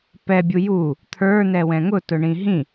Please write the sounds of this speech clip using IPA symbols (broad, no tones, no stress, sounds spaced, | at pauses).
p ɛ bʲ u j u | t̪ʰ ə˞ n ɛ w ɛ̃ ŋ ʊ t ʊ ɳ ĩ ɦ ĩ